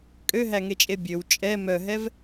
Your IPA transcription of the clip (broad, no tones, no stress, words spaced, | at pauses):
kʼøɦæŋet͡ʃʼe bʲøw t͡ʃʼɛ mœɦɛv